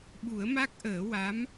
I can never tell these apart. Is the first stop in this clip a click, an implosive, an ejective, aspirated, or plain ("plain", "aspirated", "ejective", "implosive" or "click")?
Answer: implosive